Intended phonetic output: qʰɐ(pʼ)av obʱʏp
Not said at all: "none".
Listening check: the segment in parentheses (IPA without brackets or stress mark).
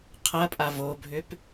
pʼ